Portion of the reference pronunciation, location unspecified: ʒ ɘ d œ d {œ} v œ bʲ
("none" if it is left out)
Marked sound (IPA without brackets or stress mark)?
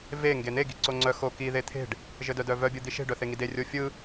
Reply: œ